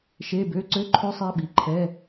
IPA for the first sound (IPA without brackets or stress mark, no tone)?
ʃ